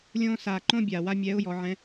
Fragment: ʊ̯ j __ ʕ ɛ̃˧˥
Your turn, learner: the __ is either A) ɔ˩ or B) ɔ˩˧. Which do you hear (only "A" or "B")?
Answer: B